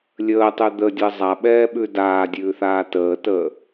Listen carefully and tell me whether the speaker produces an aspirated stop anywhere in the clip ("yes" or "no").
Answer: no